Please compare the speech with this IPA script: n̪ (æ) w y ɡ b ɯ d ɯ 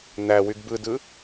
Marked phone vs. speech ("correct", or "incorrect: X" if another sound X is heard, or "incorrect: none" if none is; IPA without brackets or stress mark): correct